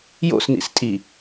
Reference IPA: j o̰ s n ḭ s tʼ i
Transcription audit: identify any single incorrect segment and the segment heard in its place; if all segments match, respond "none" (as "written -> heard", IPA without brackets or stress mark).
none